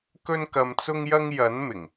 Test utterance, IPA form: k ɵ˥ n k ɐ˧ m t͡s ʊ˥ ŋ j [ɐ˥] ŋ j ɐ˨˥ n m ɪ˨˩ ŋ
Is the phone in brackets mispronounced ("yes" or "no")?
no